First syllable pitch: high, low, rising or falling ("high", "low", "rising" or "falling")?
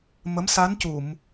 rising